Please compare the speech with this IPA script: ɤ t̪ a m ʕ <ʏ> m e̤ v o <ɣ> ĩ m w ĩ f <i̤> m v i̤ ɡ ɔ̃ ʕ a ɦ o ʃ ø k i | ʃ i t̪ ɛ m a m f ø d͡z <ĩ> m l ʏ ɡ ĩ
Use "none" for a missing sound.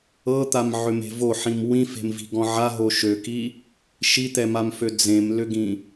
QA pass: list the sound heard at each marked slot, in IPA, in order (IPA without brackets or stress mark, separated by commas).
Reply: ʏ, ħ, e̤, ẽ